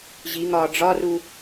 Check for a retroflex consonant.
present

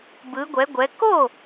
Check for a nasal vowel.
absent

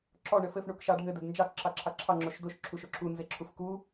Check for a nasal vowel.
absent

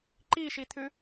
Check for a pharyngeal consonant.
absent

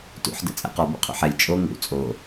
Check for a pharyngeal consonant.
present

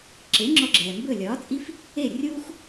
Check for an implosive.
absent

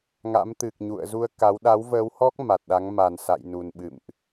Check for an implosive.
present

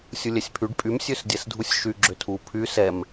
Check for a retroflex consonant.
present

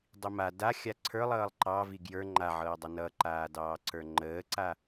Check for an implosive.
absent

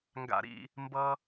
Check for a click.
absent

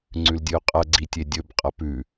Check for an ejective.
present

